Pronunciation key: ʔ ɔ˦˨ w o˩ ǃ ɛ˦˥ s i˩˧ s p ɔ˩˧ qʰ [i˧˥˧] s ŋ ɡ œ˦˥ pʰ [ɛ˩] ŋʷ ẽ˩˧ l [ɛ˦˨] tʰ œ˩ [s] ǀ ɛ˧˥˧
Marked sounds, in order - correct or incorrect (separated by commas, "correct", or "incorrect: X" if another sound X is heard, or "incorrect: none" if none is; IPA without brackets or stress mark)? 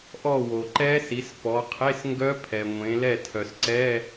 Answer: incorrect: e˧˥˧, correct, correct, correct